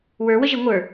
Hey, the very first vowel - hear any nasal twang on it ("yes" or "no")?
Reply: no